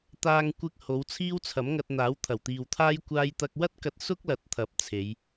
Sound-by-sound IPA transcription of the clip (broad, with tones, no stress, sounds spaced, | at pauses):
t̪ aː˧ ŋ kʷ ɪ˧ k̚ h o˨˧ w t͡sʰ iː˥ w t͡sʰ ɐ˨˥ m ŋ ɐ˧ t̚ n̪ aː˨˥ w t̪ʰ ɐ˨˩ w t̪ iː˨ w t̪ʰ aː˥ j kʷ aː˥ j t̪ ɐ˥ k̚ w ɐ˥ t̚ k ɐ˧ t̚ s ʊ˥ k̚ l ɐ˧ t̚ t̪ʰ ɐ˨˥ p̚ t͡sʰ e˨˧ j